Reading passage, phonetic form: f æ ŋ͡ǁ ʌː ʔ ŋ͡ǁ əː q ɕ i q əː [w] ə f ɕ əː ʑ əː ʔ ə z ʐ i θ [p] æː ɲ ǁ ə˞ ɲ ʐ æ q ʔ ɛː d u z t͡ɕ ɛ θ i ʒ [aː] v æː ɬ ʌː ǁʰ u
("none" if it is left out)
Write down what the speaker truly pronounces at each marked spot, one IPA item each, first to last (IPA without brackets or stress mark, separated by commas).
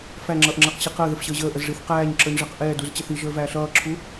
ð, q, əː